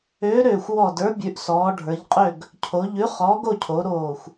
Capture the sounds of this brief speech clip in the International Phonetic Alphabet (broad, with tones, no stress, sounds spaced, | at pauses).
øː˨˥ ɾ øː˧˩ xʷ w ɔ˧˩ d ə˞˨˥ bʲ ʉ˩˧ ʔ s ɔː˩˧ ɖʱ ə˞˩˧ ʎ qʼ ø˥˨ ɡ | cʰ o˩˧ ʎ ʉ˨˥ χ ɔː˨˥ ɡ o˥˨ cʰ o˩˧ ɾ oː˧˩ xʷ